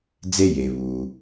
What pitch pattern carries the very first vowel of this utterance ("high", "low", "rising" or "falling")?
high